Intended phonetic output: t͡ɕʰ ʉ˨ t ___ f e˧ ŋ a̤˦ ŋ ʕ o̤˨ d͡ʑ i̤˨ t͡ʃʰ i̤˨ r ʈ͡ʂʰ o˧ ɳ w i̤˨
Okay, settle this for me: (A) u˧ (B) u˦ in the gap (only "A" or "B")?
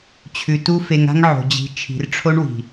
A